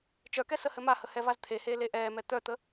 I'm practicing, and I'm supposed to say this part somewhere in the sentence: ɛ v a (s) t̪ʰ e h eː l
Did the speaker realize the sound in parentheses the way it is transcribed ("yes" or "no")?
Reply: no